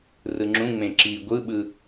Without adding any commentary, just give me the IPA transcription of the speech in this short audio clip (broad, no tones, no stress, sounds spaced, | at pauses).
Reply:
r ɯ ŋ͡ǁ ũ ŋ͡m ẽ ǁ i ɡʷ ɯ ɓ ɯ